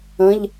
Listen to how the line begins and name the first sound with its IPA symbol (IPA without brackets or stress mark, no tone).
ə̃